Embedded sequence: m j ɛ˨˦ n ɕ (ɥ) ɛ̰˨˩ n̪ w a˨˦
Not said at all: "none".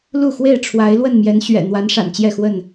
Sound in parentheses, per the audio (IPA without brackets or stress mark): ɥ